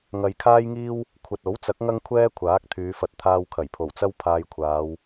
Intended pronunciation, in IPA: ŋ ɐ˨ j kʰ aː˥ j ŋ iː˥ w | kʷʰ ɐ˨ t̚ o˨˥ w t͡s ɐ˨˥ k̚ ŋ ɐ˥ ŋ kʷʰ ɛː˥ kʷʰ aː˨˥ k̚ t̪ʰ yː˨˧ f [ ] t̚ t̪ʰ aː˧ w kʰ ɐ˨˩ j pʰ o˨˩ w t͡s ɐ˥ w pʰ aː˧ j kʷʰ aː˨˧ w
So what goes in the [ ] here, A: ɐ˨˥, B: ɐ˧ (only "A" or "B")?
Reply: B